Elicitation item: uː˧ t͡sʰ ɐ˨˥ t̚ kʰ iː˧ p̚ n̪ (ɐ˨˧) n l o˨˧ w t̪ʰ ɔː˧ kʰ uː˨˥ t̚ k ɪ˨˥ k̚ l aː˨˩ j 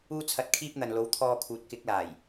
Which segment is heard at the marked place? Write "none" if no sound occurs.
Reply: ɐ˨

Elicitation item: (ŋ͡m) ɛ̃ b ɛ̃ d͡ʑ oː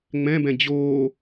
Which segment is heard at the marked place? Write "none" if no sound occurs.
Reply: ŋ͡m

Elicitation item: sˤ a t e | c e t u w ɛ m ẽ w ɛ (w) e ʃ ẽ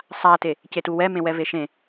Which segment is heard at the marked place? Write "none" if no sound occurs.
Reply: v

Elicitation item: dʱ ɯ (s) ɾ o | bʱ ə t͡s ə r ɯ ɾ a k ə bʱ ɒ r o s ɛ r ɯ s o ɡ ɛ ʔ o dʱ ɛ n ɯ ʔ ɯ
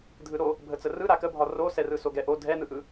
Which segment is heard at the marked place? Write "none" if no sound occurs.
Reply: none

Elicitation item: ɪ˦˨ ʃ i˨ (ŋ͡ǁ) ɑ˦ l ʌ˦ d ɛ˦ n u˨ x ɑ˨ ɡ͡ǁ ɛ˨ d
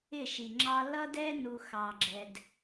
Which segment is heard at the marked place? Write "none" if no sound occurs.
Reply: ŋ͡ǁ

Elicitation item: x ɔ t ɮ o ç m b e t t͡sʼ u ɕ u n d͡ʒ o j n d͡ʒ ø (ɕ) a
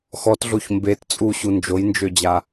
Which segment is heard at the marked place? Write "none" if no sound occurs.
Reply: d͡ʑ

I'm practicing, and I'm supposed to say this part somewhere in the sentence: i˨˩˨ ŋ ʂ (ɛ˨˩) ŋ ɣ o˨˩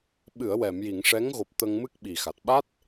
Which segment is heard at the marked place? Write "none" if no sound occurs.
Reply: ɛ˧˥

